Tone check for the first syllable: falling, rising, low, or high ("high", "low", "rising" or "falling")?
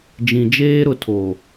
low